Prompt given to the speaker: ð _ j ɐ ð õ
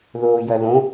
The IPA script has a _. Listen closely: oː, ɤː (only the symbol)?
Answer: oː